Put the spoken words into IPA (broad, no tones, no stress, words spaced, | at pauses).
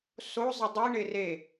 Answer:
so zˤədˤi ɳɪre